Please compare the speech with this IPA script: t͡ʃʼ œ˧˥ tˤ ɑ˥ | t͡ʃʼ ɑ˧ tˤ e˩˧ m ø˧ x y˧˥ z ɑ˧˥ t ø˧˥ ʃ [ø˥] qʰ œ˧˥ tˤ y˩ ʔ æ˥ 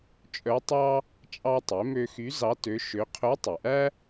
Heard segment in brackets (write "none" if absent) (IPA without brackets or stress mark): ø˧˥